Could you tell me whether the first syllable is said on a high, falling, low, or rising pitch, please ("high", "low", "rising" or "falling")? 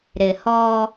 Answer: low